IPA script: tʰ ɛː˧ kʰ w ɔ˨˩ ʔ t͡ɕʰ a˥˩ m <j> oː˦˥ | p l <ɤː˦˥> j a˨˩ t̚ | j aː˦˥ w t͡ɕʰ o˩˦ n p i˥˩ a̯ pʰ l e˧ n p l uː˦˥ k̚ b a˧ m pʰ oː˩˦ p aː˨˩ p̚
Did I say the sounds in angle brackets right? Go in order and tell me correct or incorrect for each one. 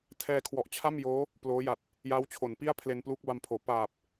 correct, incorrect: oː˦˥

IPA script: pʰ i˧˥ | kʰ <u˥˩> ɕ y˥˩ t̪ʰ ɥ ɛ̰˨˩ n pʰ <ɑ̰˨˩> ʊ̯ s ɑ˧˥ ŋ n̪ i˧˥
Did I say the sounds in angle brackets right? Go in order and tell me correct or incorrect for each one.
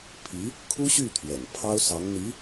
incorrect: u˥, incorrect: ɑ˥

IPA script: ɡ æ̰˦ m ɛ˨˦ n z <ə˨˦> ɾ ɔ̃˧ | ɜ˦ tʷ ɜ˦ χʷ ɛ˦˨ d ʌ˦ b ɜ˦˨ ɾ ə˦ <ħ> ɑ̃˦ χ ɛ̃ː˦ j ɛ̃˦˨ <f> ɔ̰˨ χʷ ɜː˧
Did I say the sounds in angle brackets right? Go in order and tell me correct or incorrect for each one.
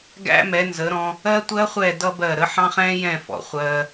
correct, correct, correct

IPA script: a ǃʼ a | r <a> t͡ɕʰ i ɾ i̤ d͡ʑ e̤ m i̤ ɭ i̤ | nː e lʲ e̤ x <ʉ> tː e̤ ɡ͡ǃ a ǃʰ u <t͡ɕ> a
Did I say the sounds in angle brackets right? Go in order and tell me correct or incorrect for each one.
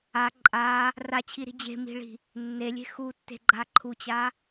correct, incorrect: u, correct

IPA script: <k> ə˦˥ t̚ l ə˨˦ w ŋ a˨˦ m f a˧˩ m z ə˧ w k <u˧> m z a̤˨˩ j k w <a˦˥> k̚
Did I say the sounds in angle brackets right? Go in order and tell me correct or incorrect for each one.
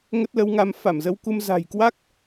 incorrect: ŋ, correct, correct

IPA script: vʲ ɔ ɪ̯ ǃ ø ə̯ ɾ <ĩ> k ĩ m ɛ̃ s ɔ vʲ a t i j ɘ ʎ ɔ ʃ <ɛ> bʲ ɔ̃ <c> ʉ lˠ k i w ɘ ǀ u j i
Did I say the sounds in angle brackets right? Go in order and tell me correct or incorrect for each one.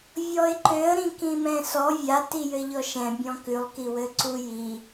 correct, incorrect: ɛ̃, incorrect: k

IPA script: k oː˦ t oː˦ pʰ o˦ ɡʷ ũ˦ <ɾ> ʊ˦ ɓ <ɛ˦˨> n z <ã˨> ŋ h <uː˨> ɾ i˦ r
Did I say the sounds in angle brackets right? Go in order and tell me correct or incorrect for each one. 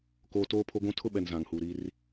incorrect: tʰ, incorrect: ɛ˨, correct, correct

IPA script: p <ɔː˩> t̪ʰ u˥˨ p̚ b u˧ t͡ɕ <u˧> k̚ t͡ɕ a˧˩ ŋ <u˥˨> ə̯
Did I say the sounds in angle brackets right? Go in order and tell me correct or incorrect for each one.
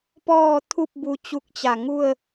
incorrect: ɔː˥˨, correct, correct

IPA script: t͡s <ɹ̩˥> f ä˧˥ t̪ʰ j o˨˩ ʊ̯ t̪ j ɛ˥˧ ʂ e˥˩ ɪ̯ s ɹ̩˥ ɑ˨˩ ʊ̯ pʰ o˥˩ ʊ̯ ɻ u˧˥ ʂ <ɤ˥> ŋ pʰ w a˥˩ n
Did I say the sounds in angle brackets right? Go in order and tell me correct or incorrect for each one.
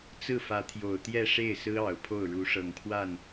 incorrect: ɹ̩˥˩, incorrect: ɤ˨˩

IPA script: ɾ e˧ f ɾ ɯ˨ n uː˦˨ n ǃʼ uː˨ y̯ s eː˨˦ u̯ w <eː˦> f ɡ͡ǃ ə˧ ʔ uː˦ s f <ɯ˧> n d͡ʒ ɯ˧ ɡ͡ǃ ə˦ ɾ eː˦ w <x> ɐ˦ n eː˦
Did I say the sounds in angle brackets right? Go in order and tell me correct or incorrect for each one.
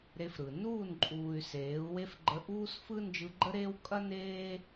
incorrect: e˦, incorrect: ɯ˦, incorrect: kʼ

